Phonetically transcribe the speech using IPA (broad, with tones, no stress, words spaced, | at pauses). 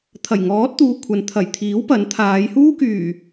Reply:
t̪ʰɐ˨˩jŋɔː˨˥t̚t̪uː˨ kʷʰɐ˨n t̪ʰɐ˨˩jt̪ʰiː˨˥wpɐ˨˥n t̪ʰaː˨˧j huː˥kyː˨˩